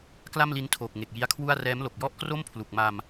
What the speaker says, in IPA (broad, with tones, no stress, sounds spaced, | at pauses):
k l a˥˩ m l i˦˥ n tʰ oː˨˩ k̚ ŋ e˨˩ k̚ j i˦˥ a̯ kʰ w u˥˩ a̯ r ɛː˦˥ m l o˨˩ k̚ j ɔ˥˩ ʔ k r o˥˩ m pʰ l u˨˩ k̚ m a˧ m